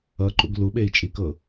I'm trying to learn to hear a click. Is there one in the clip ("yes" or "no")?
yes